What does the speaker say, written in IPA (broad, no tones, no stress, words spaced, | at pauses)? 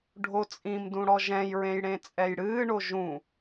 ɖʱot͡sʼĩmdũ ɽɔʒɛ̃jɹẽj ɽẽt͡sʼɛjɽɨːɳo ʒũ